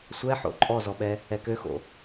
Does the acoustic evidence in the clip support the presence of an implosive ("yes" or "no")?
yes